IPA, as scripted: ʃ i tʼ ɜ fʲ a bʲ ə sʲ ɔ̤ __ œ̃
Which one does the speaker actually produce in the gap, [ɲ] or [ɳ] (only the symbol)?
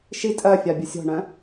ɳ